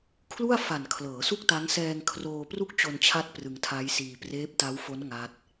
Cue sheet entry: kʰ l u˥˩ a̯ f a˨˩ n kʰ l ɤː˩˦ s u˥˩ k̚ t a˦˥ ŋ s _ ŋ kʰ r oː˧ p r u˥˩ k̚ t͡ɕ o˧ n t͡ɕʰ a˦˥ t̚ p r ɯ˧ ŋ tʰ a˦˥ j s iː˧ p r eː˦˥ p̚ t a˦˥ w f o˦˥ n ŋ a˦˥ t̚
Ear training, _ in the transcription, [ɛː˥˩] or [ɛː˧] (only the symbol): ɛː˧